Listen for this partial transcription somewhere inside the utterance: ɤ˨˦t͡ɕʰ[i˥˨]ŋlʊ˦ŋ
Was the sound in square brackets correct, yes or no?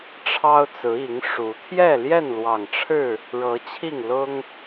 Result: yes